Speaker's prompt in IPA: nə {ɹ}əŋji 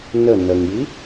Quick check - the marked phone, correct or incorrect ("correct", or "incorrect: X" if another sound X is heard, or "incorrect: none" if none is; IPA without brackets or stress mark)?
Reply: incorrect: n